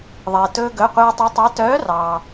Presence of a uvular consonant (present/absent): present